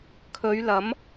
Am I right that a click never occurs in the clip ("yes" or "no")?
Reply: yes